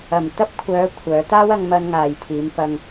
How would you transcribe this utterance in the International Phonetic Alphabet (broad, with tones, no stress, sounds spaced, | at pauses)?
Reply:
ɐ˨ m t̪ ɐ˧ p̚ kʷʰ œː˨˧ kʷʰ œː˨˧ t̪ aː˥ w ɐ˧ ŋ m ɐ˧ n ŋ aː˨ j t̪ʰ iː˨˧ m p ɐ˧ ŋ